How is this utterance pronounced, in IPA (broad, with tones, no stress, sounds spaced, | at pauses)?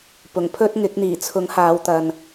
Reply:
p ʊ˨˩ ŋ pʰ ɵ˥ t̚ ŋ ɪ˨˥ k̚ n̪ iː˨˩ t͡sʰ ʊ˨˥ ŋ h aː˨˧ w t̪ ɐ˨ n